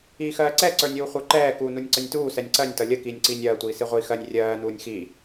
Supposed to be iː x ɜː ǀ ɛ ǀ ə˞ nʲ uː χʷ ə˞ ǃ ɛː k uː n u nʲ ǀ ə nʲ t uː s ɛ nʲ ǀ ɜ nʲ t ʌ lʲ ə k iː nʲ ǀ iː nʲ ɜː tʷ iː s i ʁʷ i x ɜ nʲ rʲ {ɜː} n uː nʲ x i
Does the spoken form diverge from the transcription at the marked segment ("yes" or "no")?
no